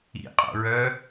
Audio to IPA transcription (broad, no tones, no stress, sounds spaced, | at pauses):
ḭ qʼ o̰ ɹ œ